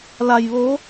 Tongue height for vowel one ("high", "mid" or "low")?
low